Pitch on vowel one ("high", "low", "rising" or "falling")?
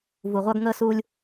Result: low